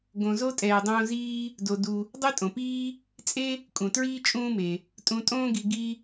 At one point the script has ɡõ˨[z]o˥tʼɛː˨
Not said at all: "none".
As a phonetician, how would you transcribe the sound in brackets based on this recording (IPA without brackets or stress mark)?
z